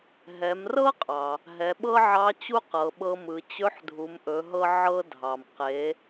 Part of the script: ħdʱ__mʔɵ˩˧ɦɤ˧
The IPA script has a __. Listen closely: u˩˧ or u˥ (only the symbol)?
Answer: u˩˧